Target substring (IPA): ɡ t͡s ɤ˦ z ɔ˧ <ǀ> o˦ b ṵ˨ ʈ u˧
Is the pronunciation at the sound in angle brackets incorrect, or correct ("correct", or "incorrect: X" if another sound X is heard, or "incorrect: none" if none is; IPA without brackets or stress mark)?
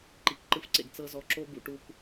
incorrect: ǁ